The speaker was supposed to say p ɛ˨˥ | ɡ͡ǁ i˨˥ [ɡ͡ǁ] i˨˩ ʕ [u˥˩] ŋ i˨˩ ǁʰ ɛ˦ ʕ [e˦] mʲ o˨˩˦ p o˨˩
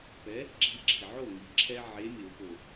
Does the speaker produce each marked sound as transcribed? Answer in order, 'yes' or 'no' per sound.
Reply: yes, no, no

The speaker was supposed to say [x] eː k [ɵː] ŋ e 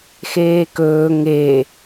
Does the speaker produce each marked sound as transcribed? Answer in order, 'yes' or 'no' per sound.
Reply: yes, yes

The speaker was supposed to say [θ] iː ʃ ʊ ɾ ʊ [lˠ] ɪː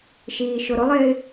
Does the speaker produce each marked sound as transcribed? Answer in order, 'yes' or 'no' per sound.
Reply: no, yes

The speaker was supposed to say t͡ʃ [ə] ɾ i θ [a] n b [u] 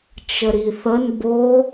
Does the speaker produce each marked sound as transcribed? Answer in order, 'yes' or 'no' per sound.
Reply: yes, no, no

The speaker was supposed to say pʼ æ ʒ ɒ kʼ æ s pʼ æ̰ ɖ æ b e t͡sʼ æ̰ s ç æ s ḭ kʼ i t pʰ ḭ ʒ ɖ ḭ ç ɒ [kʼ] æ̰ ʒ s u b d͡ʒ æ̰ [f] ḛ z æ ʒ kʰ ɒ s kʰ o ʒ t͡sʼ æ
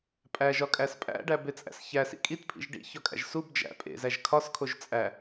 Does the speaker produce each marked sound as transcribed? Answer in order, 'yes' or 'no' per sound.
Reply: yes, no

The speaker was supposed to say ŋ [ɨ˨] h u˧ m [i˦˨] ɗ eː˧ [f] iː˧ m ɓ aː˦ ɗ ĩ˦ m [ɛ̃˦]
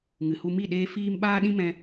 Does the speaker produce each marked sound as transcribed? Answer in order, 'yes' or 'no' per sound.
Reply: yes, yes, yes, no

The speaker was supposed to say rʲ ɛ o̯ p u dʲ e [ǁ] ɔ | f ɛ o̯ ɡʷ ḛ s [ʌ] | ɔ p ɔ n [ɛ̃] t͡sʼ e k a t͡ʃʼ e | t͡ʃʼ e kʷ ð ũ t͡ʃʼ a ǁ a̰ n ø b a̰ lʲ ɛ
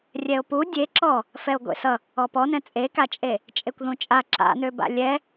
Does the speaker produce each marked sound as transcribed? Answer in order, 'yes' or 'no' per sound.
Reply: yes, yes, yes

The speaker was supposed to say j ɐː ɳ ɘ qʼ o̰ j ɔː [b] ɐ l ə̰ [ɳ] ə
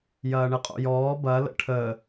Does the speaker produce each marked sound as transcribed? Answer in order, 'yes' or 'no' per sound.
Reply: yes, no

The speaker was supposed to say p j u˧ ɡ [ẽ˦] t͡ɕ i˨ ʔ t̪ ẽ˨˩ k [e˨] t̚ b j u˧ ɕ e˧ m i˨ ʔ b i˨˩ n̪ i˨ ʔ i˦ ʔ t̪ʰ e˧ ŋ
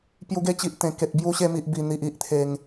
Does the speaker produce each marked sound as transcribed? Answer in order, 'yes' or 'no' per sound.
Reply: no, yes

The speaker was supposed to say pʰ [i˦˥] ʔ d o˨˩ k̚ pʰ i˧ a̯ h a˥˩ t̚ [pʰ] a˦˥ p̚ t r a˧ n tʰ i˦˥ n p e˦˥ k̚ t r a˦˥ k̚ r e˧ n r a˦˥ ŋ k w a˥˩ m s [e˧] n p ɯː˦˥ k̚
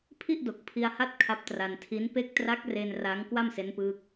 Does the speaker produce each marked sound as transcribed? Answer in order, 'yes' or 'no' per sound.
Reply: no, no, no

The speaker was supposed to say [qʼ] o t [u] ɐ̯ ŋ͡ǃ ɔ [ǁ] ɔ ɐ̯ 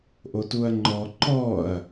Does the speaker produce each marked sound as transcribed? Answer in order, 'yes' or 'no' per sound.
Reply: no, yes, no

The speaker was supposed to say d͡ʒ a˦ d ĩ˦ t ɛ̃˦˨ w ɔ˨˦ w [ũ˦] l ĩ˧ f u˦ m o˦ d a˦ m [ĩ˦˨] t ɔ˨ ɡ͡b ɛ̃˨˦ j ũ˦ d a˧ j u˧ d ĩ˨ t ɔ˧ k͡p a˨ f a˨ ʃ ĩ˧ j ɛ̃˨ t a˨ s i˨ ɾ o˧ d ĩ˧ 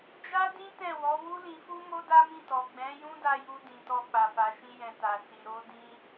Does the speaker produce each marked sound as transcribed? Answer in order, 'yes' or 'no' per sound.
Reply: no, yes

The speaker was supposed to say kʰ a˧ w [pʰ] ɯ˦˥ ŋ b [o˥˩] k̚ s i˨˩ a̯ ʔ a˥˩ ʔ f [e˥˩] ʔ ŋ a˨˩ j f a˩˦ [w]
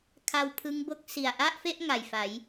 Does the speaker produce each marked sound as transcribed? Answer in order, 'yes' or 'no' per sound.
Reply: yes, yes, yes, no

